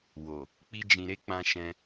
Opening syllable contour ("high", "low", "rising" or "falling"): low